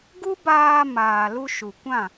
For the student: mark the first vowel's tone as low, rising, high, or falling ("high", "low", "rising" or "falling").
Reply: high